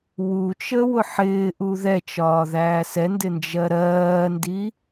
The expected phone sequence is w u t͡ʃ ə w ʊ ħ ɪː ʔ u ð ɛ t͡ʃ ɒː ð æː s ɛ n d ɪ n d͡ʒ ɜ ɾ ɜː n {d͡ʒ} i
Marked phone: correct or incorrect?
incorrect